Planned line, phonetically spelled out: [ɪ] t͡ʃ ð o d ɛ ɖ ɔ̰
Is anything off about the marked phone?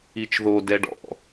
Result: yes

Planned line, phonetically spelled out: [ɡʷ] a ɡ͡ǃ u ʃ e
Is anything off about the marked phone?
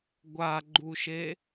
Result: no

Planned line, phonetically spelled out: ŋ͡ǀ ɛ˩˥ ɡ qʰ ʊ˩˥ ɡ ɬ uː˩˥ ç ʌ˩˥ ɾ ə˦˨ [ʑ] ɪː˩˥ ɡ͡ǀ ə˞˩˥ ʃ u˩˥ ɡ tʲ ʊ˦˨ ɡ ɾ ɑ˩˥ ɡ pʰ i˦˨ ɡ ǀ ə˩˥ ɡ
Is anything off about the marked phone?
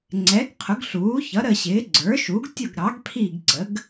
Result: yes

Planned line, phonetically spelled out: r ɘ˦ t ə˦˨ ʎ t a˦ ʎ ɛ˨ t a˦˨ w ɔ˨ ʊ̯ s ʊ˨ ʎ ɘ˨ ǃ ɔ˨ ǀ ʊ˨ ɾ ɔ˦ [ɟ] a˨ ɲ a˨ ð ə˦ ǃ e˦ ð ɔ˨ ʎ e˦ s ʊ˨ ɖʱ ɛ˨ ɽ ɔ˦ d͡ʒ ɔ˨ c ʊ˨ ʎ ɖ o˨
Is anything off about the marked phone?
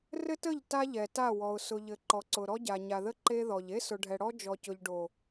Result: no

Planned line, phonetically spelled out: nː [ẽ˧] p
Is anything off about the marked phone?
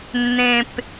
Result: no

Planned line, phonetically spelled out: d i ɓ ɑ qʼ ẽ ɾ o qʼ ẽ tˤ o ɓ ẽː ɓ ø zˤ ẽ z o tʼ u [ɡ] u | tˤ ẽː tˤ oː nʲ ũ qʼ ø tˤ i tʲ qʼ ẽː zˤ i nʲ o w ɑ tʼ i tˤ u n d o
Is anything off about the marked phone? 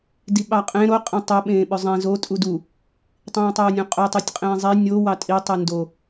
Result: yes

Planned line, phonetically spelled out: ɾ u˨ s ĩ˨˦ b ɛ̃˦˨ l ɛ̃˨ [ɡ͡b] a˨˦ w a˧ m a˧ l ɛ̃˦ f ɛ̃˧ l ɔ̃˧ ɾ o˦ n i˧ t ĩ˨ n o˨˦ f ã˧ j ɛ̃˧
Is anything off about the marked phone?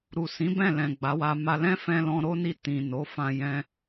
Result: no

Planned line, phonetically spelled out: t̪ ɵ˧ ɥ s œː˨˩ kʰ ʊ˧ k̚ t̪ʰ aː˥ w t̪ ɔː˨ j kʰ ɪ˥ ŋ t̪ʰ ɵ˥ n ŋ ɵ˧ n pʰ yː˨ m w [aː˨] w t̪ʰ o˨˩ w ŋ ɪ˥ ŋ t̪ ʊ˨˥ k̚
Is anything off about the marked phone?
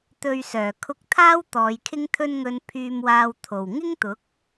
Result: no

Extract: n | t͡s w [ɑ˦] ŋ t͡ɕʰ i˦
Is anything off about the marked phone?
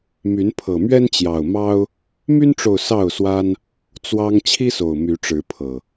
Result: no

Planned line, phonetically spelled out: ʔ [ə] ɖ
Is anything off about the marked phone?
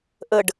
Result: no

